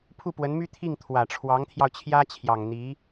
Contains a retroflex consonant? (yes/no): yes